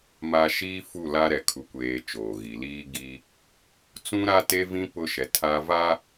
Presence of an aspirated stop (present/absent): present